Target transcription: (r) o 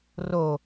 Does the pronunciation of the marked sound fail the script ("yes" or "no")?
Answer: no